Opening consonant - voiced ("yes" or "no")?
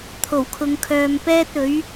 no